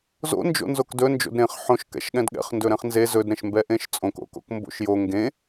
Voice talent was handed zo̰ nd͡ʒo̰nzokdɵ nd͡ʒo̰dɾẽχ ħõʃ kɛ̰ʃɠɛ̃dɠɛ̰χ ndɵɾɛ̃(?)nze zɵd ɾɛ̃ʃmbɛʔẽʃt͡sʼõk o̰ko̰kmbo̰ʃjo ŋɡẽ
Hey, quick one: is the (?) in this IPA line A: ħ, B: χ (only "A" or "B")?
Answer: B